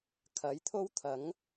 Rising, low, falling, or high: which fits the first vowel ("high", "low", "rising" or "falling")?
rising